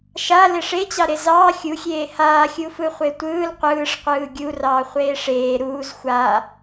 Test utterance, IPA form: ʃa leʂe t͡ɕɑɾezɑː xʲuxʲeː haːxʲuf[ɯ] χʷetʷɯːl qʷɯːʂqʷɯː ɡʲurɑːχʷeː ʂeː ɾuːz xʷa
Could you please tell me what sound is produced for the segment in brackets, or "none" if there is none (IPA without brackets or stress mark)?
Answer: ɯ